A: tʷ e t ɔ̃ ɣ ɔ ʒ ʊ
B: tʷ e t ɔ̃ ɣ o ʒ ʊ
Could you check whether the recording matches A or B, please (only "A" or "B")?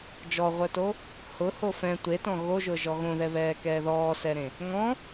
B